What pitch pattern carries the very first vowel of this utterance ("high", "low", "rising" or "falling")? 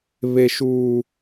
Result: high